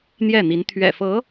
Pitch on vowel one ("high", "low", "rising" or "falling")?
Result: falling